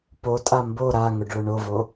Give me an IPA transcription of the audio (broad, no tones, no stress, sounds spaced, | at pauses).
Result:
p o tʼ a m b o ɾ a ŋ ʊ ɖ ɭ ʊ ɳ o v o